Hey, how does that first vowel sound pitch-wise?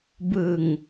low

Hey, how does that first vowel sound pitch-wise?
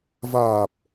low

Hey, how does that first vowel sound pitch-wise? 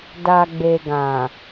low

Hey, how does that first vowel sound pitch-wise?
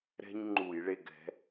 high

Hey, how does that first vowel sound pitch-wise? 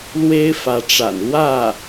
high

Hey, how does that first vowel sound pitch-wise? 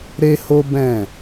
high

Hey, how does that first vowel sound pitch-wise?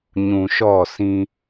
low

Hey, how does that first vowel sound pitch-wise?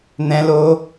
high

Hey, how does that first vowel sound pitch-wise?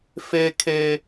high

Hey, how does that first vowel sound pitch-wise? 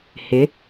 rising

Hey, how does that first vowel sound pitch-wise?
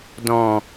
low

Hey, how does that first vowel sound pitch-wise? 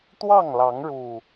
falling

